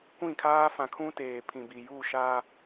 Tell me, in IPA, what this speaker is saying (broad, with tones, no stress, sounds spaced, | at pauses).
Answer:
kʷ ĩ˦˨ kʰ aː˦ f ã˨ kʰ ũ˦ t eː˨ pʰ ĩ˨ b i˨ j u˦˨ ʃ aː˦